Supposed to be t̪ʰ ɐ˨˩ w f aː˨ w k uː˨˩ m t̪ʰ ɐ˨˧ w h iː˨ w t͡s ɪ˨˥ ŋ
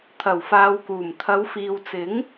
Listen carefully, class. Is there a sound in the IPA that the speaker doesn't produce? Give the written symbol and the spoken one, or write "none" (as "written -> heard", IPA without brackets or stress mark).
h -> f